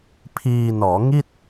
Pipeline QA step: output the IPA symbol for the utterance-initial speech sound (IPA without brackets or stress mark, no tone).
pʰ